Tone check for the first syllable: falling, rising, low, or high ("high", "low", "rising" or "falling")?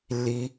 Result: high